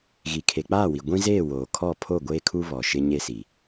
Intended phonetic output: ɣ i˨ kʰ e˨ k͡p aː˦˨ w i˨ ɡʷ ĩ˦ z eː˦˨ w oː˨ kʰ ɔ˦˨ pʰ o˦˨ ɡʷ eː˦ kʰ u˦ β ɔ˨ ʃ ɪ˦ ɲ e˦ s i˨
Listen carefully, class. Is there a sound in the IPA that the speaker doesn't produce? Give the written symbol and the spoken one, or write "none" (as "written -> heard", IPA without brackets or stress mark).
none